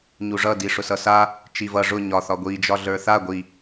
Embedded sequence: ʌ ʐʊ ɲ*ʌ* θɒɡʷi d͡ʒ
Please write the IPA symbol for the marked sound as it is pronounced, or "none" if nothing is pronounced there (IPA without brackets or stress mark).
ɒ